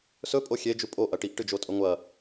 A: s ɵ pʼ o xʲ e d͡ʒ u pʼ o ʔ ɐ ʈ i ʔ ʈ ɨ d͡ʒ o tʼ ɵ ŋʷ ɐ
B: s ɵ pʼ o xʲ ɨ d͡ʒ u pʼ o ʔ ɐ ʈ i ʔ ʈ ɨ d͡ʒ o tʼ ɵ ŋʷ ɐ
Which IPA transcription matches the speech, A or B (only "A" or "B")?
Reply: A